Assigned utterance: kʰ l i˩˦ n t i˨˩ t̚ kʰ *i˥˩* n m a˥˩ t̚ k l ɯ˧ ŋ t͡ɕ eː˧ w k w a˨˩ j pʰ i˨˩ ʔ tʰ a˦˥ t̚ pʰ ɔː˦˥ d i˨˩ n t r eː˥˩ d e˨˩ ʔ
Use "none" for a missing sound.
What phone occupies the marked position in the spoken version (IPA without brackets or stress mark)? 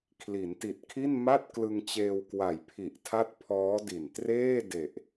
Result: i˥˩